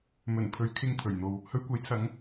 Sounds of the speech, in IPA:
mɵ˨˩n pʰɵ˨˧ɥ kʰɪ˨ŋ t̪ʰɵ˨˩ɥn̪o˨w | hɵ˧ɥkʷɐ˨˥jt͡sʰɐ˨˧ŋ

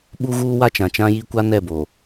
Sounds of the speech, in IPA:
ɓu˦ɣuː˦wa˦ t͡ʃã˨t͡ʃã˦ji˦ kʷa˦nɛ˦˨bo˨

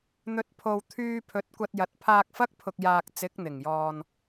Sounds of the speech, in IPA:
n̪ɵ˨˥t̚pʰo˨w t̪ʰyː˧pʰɵ˨˥t̚kʷɐ˧t̚ jɐ˨˥t̚ pʰaː˧k̚fɐ˥k̚pʰʊ˨k̚jaː˨k̚ t͡sɪ˨˥k̚n̪ɪ˨˩ŋjɔː˨n

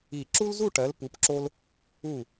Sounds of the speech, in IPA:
i˧˩ ǁu˥lzu˥˧ʈɜ˩˧l pu˩˧pǁo˧l | u˧˩

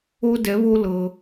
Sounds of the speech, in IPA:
o˥dɛ˧˥βo˥ lɤ˧

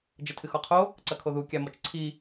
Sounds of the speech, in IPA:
d͡ʒɐtʰɨxɔqʰo | ǀɐkʰoðu kʲamɔt͡ʃǀʰi

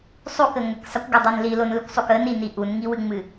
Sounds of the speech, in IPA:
sˤukə ŋəksˤəkʷɡədˤin lilonlɨkʷsˤuk ənini ʔunŋiwɨŋ͡mɨ

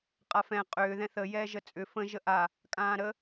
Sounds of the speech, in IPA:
qʼafɛ̃ qʼʏː ðɛ̃θə jɛːʒət͡sʼʏ fə̃ ʒəʔa | kʼãːɾə

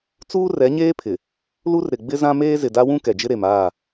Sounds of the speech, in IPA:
t͡suː˦rɛ˨˦ɲeː˦pʰɪ˨ | lu˦rɾɪ˨ ɡ͡bɪ˦zã˦meː˦ zɪ˨da˦wũ˦ kɛ˨d͡ʒɪ˦ɾe˨maː˦˨

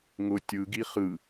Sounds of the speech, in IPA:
ŋʊ tʲɯ ɡiχɯ

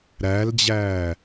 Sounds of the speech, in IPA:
ɾæld͡ʑæː

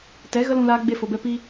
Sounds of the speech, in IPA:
tɛ˨˦ɣə˦lũ˧laː˧ ɡ͡be˧fo˨bɛ˧ pi˧

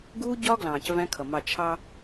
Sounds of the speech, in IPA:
ɡuː˦ɟɒː˦ ɡlɑ̃ː˨cvæ̃˦kʰʌ˨mɑ˦˨ t͡ʃʰɑ˦

